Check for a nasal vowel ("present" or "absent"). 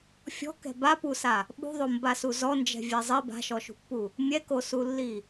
absent